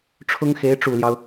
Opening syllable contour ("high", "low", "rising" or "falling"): high